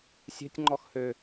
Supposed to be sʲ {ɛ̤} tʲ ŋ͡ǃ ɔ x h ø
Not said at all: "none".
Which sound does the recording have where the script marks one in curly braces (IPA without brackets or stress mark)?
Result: ɛ̤